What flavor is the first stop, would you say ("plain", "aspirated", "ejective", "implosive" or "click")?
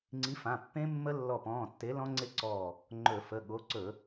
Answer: click